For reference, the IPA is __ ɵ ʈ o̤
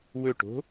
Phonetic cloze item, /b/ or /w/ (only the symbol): w